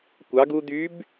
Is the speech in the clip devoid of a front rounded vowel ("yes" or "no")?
no